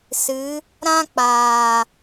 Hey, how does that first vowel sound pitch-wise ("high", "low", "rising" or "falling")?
rising